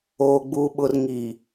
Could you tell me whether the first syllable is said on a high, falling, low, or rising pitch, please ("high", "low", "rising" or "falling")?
low